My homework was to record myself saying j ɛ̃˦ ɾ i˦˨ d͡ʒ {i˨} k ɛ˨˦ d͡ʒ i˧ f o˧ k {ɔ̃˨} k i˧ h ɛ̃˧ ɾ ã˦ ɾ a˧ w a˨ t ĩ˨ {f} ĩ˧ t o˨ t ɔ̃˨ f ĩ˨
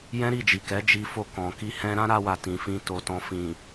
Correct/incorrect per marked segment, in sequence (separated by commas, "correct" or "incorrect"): correct, correct, correct